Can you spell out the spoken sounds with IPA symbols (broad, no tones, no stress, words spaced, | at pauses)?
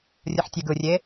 rʲɯħtʲeɡɯrʲe